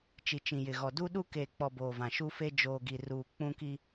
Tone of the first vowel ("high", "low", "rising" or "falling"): low